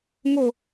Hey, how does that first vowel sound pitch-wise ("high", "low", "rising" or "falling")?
falling